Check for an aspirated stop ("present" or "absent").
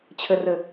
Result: present